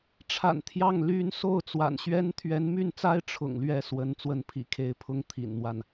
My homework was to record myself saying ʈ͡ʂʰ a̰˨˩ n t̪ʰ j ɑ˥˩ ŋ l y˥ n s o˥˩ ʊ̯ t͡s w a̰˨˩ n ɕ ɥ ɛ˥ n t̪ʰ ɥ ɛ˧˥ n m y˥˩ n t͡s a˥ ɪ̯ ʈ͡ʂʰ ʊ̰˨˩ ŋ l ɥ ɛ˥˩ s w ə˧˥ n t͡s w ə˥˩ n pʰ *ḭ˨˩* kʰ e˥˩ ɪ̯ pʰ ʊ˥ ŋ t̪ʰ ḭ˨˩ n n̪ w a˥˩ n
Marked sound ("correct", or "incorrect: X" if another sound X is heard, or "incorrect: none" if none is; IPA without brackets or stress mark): correct